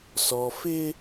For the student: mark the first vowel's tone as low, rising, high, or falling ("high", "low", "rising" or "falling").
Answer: low